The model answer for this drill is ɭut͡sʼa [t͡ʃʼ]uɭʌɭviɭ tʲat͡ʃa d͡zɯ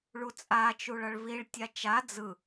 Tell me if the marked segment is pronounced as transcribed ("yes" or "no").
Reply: no